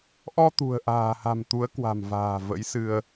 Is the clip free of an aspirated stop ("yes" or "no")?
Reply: yes